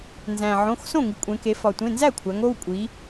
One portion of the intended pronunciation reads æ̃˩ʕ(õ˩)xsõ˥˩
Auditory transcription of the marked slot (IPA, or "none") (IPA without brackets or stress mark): õ˩˧˩